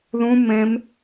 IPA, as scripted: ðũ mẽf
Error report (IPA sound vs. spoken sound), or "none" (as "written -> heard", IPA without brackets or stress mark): f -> m